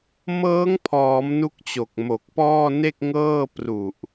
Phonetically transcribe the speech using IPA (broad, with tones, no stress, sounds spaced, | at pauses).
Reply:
m ɤː˦˥ ŋ pʰ ɔː˩˦ m n u˦˥ k̚ t͡ɕ o˨˩ k̚ m o˨˩ k̚ p ɔː˥˩ n e˥˩ k̚ ŋ ɤː˥˩ p r u˨˩ ʔ